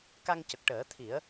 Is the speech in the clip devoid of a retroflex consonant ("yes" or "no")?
no